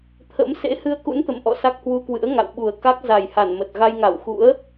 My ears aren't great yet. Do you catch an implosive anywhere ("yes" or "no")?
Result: yes